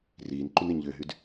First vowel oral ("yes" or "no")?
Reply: yes